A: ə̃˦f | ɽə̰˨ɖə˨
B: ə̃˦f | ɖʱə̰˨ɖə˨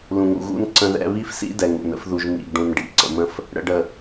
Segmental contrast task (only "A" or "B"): A